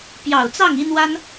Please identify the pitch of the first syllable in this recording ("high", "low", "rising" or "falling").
low